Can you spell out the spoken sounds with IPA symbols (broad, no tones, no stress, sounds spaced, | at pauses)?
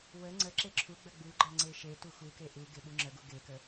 w ə ŋ͡ǀ ə ǁ e ǁʰ u ɡ͡b ə ɡ͡b u ɡ͡ǃ ɜ ŋ͡ǀ e ʃ e t u x u k e ʔ u ɡ e ɓ u ŋ͡ǁ ə ɡ u ɡ e k ə